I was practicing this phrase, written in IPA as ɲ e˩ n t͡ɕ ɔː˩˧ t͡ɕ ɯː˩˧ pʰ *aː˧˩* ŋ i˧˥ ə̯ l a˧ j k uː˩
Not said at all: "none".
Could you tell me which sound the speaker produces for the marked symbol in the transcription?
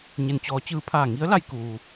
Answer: aː˧˩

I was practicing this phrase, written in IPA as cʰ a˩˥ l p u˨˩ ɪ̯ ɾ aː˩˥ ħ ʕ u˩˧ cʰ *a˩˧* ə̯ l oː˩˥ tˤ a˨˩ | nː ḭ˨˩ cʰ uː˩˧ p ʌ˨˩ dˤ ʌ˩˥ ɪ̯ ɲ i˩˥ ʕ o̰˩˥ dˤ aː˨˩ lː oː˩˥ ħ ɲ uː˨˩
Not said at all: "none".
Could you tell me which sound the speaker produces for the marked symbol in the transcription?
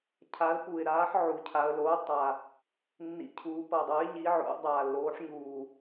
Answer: a˩˧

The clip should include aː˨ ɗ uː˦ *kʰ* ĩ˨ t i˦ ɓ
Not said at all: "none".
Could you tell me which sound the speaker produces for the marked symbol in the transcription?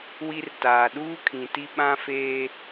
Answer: kʰ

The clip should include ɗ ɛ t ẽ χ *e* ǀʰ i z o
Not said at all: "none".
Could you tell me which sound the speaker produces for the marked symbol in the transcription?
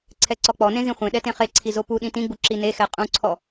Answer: e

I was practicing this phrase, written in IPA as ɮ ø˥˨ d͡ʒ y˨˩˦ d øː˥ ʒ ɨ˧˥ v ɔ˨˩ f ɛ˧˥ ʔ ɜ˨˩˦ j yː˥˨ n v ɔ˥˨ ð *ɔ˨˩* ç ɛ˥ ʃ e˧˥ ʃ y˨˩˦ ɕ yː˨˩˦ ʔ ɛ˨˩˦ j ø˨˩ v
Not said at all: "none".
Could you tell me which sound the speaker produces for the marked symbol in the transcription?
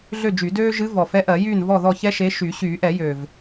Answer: ɔ˥˨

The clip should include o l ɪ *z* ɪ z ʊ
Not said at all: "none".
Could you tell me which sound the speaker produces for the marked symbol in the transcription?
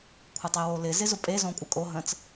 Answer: z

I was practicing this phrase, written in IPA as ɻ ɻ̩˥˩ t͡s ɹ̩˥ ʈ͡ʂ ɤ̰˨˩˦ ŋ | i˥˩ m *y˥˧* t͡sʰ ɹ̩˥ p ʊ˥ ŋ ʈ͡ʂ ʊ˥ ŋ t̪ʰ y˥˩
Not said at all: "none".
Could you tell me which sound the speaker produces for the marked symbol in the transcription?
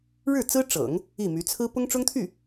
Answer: y˧˥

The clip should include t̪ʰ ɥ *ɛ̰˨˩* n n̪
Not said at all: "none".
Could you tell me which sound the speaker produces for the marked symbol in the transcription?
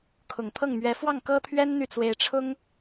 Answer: ɛ˥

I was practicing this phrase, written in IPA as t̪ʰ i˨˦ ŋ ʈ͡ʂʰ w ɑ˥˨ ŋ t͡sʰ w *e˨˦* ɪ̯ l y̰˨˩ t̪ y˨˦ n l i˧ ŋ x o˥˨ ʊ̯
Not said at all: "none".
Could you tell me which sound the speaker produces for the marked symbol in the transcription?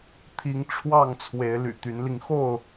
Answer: e˨˦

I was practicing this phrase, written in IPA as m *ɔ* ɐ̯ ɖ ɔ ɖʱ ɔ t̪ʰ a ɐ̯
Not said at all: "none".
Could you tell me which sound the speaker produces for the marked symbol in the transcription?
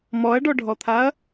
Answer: ɔ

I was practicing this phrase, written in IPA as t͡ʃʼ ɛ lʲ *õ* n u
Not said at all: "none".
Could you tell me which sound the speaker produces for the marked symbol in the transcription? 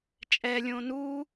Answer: õ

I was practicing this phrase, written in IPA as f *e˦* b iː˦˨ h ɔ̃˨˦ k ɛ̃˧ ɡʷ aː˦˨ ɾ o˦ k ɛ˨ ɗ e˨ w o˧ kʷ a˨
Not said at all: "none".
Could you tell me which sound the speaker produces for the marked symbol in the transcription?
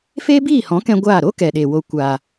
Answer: eː˦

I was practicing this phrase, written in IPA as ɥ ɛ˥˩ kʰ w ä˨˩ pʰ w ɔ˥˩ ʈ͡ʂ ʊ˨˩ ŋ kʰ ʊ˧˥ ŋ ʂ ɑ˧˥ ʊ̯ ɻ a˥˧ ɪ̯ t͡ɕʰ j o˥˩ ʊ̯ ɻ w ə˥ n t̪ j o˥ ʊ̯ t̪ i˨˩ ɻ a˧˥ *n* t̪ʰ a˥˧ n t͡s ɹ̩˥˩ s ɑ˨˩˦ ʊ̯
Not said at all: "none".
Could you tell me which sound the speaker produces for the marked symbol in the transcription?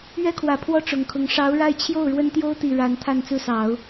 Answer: n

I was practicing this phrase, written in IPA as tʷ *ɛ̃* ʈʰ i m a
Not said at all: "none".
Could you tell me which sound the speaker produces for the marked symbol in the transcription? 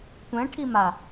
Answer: ɛ̃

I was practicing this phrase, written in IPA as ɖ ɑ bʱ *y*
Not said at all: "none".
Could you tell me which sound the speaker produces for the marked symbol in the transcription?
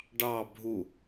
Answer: u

